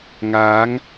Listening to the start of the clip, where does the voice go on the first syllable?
rising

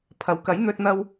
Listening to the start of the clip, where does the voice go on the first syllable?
rising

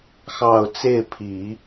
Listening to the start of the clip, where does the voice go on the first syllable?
low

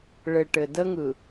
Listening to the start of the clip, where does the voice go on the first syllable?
low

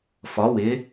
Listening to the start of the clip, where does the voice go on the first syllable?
rising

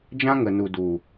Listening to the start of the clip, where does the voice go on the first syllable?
high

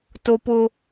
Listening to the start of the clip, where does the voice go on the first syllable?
high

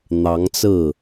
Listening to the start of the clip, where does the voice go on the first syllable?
rising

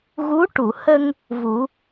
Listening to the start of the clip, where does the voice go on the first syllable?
rising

